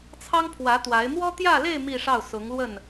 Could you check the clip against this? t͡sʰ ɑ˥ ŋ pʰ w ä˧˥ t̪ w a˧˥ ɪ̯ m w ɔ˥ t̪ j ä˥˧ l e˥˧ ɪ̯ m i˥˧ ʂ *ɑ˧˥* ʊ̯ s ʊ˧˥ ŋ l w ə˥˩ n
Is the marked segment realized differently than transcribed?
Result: yes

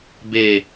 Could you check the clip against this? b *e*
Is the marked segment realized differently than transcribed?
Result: no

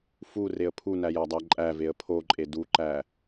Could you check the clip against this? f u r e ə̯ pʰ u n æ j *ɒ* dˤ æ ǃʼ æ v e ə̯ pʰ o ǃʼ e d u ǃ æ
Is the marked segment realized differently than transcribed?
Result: no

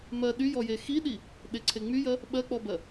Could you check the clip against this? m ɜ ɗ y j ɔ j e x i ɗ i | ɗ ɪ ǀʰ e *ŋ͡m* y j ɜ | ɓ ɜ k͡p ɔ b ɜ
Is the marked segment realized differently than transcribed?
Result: no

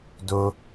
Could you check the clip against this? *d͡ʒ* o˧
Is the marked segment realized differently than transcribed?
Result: yes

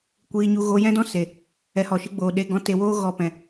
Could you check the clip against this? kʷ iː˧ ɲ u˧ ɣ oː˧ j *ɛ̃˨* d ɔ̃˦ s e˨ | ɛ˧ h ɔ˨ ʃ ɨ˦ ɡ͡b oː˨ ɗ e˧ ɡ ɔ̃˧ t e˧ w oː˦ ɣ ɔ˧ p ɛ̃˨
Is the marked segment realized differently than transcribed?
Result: yes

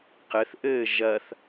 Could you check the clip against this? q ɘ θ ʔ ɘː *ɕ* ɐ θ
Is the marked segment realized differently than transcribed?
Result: yes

